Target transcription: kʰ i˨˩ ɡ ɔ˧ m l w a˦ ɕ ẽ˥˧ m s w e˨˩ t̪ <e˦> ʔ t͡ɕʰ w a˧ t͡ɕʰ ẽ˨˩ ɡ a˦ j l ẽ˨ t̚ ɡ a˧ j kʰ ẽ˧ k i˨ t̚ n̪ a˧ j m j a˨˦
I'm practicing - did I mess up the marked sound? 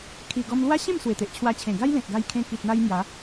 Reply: yes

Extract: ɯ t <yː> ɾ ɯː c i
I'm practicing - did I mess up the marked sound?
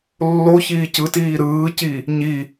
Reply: yes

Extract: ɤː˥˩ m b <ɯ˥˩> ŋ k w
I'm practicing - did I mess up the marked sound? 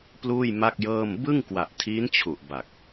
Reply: no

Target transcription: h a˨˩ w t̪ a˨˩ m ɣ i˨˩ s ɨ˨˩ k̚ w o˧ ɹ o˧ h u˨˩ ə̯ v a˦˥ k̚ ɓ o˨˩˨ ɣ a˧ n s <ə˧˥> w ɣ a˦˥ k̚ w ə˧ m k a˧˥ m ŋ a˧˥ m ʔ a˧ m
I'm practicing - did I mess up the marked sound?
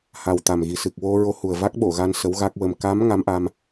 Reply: no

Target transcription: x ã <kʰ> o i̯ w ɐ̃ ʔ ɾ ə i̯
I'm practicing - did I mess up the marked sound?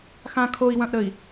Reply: no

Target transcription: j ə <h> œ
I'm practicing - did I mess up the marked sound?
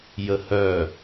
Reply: no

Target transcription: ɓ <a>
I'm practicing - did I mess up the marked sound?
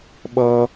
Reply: yes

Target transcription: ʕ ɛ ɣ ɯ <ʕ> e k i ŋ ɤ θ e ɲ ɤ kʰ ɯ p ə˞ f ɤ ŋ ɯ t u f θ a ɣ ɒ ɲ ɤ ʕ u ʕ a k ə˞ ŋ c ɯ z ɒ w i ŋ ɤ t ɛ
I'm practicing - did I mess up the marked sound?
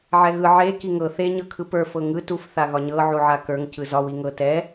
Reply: no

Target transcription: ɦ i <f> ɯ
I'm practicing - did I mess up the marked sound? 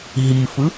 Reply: no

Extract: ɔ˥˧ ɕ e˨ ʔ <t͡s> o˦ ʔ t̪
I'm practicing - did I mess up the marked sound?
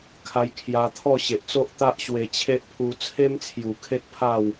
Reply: no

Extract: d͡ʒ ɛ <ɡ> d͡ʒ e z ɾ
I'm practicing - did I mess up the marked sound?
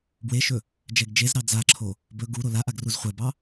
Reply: no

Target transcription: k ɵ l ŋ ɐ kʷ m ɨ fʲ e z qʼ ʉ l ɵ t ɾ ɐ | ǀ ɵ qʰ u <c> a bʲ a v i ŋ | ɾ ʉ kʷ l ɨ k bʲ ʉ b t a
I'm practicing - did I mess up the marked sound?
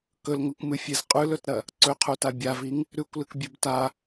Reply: yes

